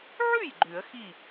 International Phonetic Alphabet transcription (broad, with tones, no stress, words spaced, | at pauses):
ʕʉ˥˩j ɡ͡ǃʉ˨˩˦ə̯ xi˥˩